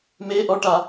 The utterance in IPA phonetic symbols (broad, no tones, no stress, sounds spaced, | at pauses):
m e ʔ ɔ ʈ a